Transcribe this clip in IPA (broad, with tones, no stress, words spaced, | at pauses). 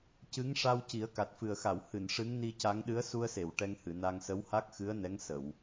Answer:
cɨ˧˥ŋʂa˧w ci˨˩˦ə̯ka˨˩t̚fɨ˨˩ə̯xa˨˩˨w hɨ˨˩˨n ʂɨ˧˥ŋni˧ca˧˥ŋ ɗɨ˧˥ə̯su˧ə̯se˨˩˨w ʈɛ˧ŋhɨ˨˩˨na˧ŋ sə˧˥wha˦˥k̚xɨ˧˥ə̯nɛ˧˥ŋ sə˨˩˨w